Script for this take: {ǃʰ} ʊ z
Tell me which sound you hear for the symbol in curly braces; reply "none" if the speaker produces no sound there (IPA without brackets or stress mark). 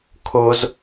kʰ